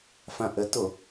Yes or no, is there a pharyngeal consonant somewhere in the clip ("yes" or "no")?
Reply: no